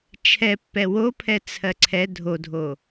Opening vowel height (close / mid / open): mid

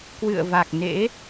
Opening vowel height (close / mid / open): close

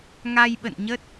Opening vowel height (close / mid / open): open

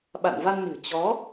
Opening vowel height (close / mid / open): open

